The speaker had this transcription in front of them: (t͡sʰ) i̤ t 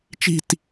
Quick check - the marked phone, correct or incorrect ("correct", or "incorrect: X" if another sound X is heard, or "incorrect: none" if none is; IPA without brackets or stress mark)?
incorrect: t͡ʃ